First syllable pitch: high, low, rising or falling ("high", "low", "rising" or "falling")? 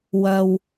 low